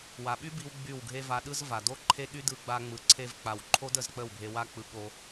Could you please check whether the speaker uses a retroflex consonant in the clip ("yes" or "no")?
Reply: no